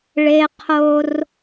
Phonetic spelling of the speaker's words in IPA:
ɭ e˦ qʰ o˦ r

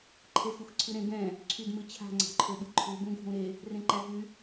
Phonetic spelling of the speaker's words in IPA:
ǃʰ e x u x ǀʰ ɨ ɾ ẽ ɡ ɛ̃ | ǀʰ y d m ɨ t͡ɕʰ a̤ ŋ͡ǀ a̤ ǃʰ ø ɓ ɨ ǃʰ u b ũ ɡʱ ũ ɾ e | r ẽ ǃ æ ɦ y

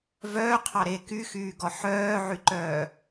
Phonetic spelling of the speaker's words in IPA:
v œː qʰ ɑ ɾ e k y x yː ɡ ɔ ħ œː ʕ y ǃ œː

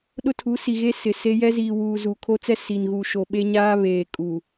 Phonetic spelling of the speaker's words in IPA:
ɗ ʊ˦ tʰ u˨˦ s i˨ ɣ e˦ s ɪ˨ s e˦ j ɛ˦ z iː˨ w uː˨ z u˨ kʰ o˦ t͡s ɛ˦ s i˨ n ɣ u˨ ʃ o˨ ɓ e˦ ɲ aː˦ β eː˨ kʼ u˨

